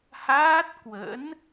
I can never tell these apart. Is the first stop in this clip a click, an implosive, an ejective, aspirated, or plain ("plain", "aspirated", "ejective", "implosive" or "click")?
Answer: plain